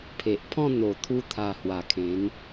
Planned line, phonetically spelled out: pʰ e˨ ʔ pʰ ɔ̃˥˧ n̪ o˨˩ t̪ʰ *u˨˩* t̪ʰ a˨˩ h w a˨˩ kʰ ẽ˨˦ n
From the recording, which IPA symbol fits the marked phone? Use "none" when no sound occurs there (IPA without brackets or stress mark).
u˧